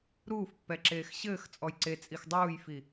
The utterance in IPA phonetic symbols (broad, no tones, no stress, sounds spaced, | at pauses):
ɾ uː f pː ɛ ǁ eː x ɕ ɘː x t͡sʼ ɔ j ǀ e t͡sʼ i x dˤ uː j f i